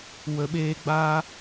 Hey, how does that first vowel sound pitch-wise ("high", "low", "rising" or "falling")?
low